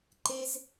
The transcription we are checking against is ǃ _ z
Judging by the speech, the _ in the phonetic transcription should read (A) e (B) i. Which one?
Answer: A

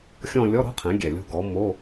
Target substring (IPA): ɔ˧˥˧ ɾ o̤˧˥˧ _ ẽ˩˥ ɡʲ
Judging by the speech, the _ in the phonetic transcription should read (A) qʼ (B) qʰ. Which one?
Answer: B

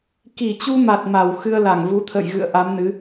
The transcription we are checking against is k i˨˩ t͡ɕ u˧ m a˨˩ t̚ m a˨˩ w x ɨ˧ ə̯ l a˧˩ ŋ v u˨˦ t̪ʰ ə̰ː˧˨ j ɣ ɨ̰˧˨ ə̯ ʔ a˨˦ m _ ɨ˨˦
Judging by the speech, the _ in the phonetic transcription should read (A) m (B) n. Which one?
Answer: B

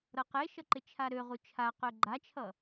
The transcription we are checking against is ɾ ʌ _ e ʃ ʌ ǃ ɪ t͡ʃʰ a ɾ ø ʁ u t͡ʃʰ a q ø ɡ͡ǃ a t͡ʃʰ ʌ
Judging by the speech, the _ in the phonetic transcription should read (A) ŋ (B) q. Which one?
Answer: B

